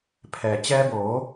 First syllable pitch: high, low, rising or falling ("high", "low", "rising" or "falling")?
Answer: low